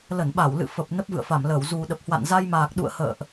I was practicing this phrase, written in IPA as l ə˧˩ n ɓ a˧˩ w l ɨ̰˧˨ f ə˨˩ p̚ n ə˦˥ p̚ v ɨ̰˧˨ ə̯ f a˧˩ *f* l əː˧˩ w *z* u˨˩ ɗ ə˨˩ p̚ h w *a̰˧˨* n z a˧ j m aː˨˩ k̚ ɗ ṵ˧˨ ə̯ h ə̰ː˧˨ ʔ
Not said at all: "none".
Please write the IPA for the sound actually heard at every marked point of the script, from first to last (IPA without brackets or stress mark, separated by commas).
m, z, a̰˧˨